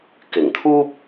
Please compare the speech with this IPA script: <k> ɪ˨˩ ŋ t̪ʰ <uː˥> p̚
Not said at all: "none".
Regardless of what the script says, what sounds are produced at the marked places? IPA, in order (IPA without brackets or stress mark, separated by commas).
k, uː˥